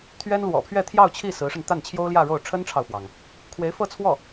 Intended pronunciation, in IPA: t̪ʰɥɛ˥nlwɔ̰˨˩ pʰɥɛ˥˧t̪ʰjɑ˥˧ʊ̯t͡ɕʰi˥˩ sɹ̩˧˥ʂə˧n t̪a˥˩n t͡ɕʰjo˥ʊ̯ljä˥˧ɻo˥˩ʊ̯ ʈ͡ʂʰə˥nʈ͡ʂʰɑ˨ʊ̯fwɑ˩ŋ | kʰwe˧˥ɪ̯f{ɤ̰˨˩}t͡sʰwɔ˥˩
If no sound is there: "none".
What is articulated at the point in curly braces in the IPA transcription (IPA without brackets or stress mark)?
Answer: ɤ˥˧